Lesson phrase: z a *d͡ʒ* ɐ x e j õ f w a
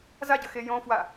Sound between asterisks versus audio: incorrect: ɟ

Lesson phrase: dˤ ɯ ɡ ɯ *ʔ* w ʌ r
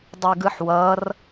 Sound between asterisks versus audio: incorrect: ħ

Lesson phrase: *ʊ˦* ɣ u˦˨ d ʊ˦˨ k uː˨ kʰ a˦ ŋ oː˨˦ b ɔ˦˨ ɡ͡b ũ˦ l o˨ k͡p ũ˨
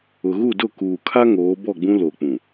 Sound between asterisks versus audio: incorrect: ʊ˨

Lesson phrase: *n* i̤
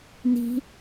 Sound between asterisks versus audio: correct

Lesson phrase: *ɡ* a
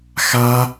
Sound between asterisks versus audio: incorrect: x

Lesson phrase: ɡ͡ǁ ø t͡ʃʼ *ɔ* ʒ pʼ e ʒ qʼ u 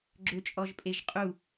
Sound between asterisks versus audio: correct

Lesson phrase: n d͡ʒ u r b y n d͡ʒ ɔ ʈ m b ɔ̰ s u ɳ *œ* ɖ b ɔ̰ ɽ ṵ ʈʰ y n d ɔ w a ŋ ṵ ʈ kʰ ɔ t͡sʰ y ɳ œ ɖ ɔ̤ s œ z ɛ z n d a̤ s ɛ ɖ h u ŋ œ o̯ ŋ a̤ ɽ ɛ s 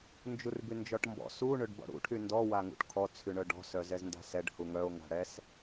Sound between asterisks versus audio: incorrect: ø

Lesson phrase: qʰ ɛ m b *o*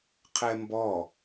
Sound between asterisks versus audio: incorrect: ɔ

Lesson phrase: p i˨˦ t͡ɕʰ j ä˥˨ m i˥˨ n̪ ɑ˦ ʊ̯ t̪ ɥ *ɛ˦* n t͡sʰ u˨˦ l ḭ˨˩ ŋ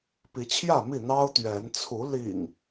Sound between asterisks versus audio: incorrect: ɛ˨˦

